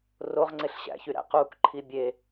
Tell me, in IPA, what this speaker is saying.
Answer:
roʁŋ͡ǀeɬ ɕæ̰çyɾæ̰ quk ǃʰibʲe

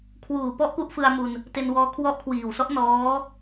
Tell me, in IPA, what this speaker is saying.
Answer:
kʰwuː˨˩pɔ˦˥ʔ ku˦˥ʔfɯ˧a̯mu˧n | te˧nwɔː˧ kʰwɔ˦˥ʔkʰwiː˨˩wsɔ˦˥ʔ nɔː˦˥

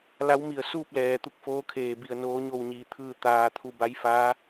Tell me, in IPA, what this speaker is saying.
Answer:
la˧˥w mi˧˩ə̯suː˥˨p̚lɛː˩ t̪u˥˨k̚foː˧˥kʰeː˧˩bi˧˩ə̯ noː˧˥ɲo˥˨wɲiː˧t̪ʰɯː˥˨ t̪aː˧t̪ʰu˥˨ ba˧˥jfaː˧˥

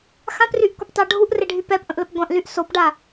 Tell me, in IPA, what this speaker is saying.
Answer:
xãpryʔkʷəptˤa ɖʱuʔreɖʱy pɛpʔə̃ʔləp ɡʷãʔlyʔ sopɖa

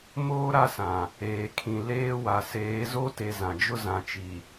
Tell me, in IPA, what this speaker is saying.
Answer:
moː˦ ɾa˦sã˨ | eː˨kʰĩ˨ leː˦wa˨ seː˨˦ zo˦te˨ zã˨d͡ʒʊ˦ zã˨t͡ʃi˨

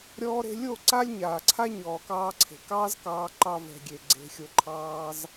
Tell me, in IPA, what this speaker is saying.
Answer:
ɾʲɔː˧ɾe̤˧lʲo˦˨ ǀa˦lʲ ɲaː˨ ǀʰa˦ɲɔː˨kɑː˧ǀʰe̤˨ kɑː˦zkɑː˧ ǃɑ˧vɛ̤˨ɡʲe˨ ɡ͡ǀe̤˧xʲo˧ǃʰɑː˦z

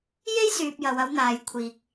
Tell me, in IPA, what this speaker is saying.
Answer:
je˥jsyː˨p̚jɐ˨w ɐ˨˧wn̪aː˨jkʷʰiː˨k̚

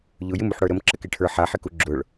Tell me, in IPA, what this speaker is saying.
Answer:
ʎʊjɪm uħɽə˞ɾəm ǁəkeʈʰə˞ ħaħɪku ɡ͡ǁʊɭ

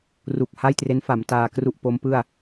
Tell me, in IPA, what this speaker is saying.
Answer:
ru˨˩k̚ha˥˩jtre˦˥nfa˩˦m taː˧kru˥˩ʔpo˦˥mpɯ˥˩a̯

